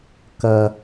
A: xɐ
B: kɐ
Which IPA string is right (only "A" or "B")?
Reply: B